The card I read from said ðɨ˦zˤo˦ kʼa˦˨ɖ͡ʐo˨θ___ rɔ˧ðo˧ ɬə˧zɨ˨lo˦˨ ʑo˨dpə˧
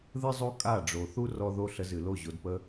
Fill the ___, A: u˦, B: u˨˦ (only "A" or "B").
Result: A